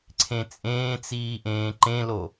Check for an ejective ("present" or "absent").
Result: present